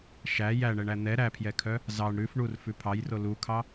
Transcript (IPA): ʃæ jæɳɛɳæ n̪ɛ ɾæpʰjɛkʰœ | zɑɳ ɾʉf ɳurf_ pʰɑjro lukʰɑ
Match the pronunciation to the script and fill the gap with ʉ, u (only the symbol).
ʉ